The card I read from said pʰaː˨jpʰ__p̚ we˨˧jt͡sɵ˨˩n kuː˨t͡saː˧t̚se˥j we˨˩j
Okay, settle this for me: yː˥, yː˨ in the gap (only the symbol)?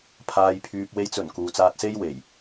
yː˨